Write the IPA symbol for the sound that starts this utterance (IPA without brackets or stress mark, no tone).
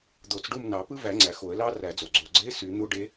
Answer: d̪